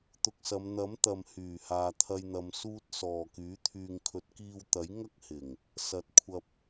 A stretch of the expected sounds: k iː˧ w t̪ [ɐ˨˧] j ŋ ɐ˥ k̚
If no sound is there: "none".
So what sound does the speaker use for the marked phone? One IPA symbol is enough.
ɐ˨˥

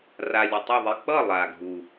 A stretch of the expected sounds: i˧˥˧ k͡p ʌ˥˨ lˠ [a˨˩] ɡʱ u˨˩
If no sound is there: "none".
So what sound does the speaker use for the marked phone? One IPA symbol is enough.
a˨˩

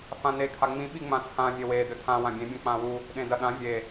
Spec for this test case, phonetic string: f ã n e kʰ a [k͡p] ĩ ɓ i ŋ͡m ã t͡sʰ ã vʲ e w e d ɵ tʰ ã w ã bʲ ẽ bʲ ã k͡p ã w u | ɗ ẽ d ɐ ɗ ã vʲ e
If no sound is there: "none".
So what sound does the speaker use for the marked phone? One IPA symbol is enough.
ŋ͡m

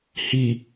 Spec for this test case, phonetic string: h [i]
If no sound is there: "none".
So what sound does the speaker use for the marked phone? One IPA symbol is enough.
i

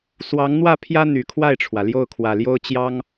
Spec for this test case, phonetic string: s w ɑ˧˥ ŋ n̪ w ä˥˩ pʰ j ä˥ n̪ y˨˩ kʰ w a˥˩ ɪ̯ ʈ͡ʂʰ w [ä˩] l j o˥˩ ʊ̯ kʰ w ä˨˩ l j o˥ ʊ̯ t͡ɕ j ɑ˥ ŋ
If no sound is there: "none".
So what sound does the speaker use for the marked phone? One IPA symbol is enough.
ä˩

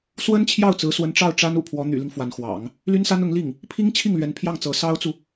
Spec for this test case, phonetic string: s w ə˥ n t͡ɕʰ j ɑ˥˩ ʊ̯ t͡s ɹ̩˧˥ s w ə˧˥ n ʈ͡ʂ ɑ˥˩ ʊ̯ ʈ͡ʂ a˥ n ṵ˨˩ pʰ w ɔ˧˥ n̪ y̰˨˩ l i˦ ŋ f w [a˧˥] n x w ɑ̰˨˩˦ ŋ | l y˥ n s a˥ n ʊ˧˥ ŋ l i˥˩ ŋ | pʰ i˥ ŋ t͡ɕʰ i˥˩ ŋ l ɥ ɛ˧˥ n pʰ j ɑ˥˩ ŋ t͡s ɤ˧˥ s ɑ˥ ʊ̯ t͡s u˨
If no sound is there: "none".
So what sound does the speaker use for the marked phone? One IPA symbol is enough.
a˧˥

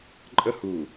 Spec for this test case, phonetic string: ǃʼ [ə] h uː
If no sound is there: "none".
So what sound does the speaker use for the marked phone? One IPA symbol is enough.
ə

